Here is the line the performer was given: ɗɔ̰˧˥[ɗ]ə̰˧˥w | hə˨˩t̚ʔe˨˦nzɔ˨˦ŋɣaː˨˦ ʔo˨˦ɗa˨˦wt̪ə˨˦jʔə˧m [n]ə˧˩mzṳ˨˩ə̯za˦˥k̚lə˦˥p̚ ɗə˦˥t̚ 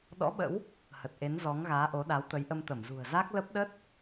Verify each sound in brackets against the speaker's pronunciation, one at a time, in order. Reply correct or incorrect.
incorrect: ɓ, incorrect: t̪

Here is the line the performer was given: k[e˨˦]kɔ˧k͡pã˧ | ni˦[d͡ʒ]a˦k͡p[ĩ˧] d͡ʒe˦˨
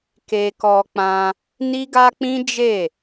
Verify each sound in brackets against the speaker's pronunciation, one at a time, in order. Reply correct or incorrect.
incorrect: e˧, incorrect: ɡ, incorrect: ĩ˦

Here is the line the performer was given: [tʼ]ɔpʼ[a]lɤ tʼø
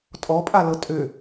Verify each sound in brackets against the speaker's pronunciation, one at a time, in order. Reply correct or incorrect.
correct, correct

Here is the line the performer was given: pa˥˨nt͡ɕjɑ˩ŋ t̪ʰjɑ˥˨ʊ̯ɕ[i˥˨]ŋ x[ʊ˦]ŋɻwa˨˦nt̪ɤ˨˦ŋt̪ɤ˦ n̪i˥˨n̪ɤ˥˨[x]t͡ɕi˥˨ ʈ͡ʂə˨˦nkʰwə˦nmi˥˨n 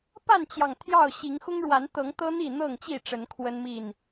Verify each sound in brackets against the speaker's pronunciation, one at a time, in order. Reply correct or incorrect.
incorrect: i˨˦, correct, incorrect: ŋ

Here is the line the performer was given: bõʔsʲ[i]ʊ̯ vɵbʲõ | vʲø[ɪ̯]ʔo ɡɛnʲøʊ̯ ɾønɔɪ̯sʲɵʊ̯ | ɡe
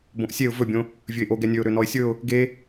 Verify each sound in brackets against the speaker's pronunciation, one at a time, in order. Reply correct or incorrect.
incorrect: e, correct

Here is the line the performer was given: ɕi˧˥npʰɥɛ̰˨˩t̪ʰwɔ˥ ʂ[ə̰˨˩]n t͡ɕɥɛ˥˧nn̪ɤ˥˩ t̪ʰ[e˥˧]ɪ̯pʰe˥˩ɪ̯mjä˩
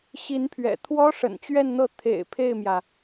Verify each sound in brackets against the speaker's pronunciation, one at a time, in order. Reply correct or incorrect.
correct, incorrect: ḛ˨˩

